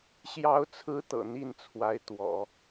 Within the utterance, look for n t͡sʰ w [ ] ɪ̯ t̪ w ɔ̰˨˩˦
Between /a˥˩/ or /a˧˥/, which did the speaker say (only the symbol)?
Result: a˧˥